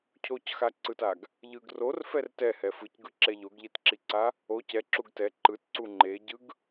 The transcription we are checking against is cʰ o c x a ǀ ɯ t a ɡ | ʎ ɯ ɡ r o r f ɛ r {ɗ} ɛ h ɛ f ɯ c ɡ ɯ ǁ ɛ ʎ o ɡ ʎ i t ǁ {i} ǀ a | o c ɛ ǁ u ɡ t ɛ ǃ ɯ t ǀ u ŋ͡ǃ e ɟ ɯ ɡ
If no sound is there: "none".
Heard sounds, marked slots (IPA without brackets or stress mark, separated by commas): t, i